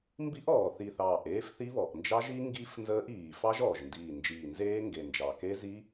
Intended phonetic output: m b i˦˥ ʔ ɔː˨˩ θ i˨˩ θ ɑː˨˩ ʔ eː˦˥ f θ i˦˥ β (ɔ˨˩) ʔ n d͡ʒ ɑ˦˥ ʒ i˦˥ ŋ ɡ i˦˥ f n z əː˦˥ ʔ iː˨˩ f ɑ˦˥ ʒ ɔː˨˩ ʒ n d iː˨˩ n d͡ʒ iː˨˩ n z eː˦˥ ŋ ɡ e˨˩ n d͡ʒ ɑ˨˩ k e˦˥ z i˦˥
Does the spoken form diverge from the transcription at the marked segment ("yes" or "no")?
no